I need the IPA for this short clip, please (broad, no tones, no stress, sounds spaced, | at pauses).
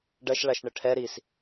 ɖ ɐ ʃ ɭ a ʃ ɳ ɘ ʈʰ ɛ ɾ i s